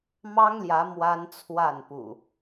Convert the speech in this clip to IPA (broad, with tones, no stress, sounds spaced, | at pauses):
m ɑ˦ ŋ l j ä˨˦ m w a˦ n t͡sʰ w a˥˨ n p ṵ˨˩